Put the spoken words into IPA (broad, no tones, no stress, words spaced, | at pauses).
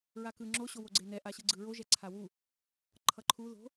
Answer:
ɹakɯ ŋ͡ǁo ɕowoɡ͡ǀenɛ ʔaɕɯɡ͡ǀɯɹo ʒɛǀʰawu | ǃʰʌǃʰu ðo̤